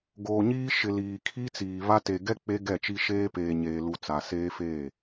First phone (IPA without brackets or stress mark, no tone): ɡ